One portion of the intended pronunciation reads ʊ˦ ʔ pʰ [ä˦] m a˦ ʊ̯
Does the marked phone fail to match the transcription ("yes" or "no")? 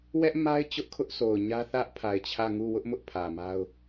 yes